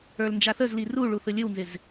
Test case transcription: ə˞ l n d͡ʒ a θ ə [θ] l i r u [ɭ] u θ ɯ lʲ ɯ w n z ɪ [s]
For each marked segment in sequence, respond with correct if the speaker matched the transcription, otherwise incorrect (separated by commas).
incorrect, correct, incorrect